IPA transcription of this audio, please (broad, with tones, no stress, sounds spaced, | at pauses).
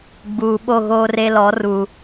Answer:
ɡ͡b uː˨ ɓ o˦˨ ɣ oː˦ r e˦ l ɔ˨˦ r u˨